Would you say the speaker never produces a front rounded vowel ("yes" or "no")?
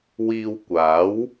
yes